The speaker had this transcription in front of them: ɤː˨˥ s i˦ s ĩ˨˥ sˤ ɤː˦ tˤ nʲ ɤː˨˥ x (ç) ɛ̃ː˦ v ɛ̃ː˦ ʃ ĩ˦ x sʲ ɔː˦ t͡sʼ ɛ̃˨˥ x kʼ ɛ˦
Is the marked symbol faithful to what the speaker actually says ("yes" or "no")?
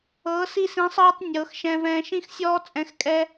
no